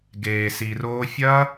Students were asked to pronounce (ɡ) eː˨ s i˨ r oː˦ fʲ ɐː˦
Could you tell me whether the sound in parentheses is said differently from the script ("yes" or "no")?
no